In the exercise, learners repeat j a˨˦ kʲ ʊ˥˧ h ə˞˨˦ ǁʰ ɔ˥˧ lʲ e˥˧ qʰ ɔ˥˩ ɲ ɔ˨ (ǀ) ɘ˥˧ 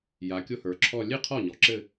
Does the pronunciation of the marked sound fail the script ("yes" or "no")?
yes